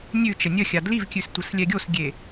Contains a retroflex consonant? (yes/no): no